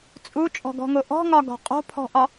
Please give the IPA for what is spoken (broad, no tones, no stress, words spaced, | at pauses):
t͡sʼut͡ʃʼɔ̤ɡɔ̤ŋo ʔɔ̤ŋɒɡɔ̤ qʼo̤pʰɔ̤ʔɒ